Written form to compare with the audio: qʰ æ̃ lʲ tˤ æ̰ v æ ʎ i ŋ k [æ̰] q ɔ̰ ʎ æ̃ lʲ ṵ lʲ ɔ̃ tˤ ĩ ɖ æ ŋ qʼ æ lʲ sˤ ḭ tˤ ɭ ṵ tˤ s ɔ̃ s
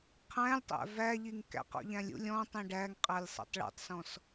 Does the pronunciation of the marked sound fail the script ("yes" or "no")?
no